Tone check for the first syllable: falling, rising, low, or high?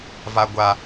high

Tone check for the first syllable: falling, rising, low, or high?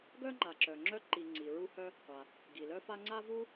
high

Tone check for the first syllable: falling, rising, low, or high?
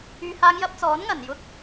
low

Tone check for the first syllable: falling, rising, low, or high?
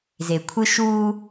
low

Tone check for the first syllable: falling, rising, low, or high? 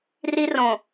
high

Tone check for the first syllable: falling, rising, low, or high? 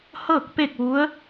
falling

